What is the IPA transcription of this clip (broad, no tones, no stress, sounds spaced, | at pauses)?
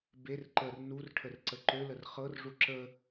b e r ǃ ə r n u r ʈʰ ə r ǀ ə ǃ ø l ə r χ ɤ r ʐ u ǁ ə